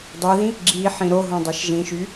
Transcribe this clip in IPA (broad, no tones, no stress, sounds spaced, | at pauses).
dˤ ɛ ð ĩ | ɡ͡ǁ i ħ ĩ ɾ o ɦ õ dˤ ɛ ʃ ʒ ĩ ʃ y